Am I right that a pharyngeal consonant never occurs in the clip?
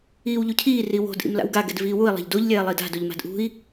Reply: yes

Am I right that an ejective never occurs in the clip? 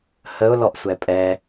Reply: no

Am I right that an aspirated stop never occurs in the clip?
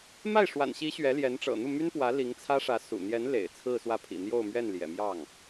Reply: no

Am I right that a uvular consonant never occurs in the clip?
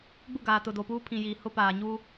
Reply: yes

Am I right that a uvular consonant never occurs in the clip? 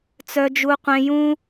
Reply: no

